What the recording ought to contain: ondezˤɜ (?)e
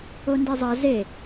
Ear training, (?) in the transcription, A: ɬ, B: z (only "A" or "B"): B